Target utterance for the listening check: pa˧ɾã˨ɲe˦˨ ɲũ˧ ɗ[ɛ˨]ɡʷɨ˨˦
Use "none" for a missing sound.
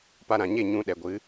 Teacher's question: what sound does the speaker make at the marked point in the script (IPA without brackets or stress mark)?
ɛ˨